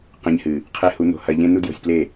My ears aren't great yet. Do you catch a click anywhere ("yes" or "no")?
no